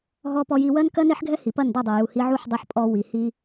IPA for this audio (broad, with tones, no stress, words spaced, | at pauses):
ɦɔ˧pɔ˧ji˧ wɜ˦nkɜ˦ne˦ħɡʱɛ˦ hi˨pɐ˦˨ndɐ˦˨ dˤɜ˨ju˨ hi˧ʕu˦˨ħdˤɛ˧ħ pʼɔ˧ wi˨ hi˧